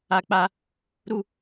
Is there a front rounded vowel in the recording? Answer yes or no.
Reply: no